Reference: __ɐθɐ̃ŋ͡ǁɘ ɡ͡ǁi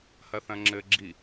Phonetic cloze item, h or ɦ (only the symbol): h